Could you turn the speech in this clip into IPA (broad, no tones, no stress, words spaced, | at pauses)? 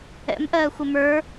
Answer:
ɛ̰mʔɜːxʷə mə˞